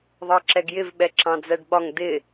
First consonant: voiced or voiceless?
voiced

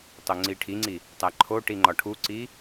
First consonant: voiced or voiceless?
voiceless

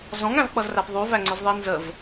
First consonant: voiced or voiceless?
voiced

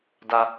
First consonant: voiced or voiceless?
voiced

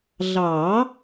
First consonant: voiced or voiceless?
voiced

